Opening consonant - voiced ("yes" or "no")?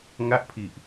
yes